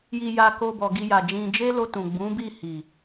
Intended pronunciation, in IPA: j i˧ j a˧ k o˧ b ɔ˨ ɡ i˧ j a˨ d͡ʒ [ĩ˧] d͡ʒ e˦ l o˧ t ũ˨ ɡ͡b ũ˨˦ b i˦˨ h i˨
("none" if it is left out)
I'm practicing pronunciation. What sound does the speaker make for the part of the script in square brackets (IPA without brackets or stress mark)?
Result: ĩ˧